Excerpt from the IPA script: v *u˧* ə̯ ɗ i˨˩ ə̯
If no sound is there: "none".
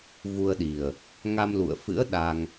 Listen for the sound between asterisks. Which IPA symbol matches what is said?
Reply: u˧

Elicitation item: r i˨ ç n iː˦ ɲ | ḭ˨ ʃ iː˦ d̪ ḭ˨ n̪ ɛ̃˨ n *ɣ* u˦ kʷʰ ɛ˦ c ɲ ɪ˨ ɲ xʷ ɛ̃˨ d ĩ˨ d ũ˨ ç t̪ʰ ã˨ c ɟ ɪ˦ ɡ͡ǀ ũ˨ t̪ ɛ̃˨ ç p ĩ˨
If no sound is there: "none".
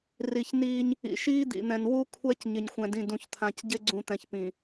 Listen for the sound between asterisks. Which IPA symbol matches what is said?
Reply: w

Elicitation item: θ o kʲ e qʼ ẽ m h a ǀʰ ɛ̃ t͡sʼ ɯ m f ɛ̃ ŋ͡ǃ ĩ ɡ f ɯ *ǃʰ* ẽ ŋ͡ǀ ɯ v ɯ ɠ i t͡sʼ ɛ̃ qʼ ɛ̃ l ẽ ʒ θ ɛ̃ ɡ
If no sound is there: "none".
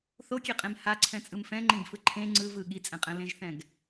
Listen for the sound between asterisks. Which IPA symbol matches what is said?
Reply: ǃʰ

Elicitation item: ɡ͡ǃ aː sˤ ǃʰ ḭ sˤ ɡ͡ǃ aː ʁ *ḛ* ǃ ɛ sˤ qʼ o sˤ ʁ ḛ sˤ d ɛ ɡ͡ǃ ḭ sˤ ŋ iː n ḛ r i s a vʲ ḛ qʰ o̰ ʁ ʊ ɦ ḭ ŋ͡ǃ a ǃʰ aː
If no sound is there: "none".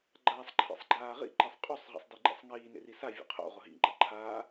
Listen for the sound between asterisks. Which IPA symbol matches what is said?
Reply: ḭ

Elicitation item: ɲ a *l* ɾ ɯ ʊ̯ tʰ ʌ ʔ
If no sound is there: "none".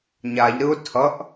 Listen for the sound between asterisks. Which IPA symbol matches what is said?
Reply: ʎ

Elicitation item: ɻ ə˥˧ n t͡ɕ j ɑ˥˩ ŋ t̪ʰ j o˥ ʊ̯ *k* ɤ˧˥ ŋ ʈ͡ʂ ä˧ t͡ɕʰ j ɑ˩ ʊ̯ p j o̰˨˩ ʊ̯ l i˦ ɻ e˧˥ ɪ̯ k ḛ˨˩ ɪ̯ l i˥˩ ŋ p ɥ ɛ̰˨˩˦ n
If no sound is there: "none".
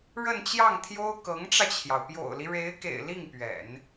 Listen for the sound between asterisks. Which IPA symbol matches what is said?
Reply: k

